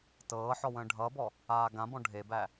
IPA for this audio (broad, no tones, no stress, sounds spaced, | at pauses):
t ɤː ħ ɔ w ə̃ː ɖʱ ʌː b ɔ | aː ɡ ã b ɔ̃ ɖʱ e b æ